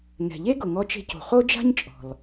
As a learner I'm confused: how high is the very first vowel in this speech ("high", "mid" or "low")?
mid